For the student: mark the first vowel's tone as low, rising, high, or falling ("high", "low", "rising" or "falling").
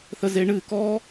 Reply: high